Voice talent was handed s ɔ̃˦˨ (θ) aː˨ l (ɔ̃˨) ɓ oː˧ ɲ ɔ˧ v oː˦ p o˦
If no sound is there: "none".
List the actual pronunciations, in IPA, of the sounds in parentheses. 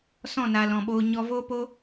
n, ɔ̃˨

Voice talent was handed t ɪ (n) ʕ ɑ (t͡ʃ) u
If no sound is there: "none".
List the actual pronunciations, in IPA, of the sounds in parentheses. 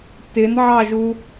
n, ʒ

